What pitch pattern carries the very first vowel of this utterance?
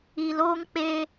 low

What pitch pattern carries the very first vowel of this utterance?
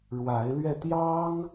rising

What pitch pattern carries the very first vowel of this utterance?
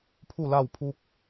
falling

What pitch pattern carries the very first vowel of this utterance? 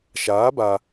rising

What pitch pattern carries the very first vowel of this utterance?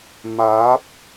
rising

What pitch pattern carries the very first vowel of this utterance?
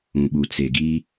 low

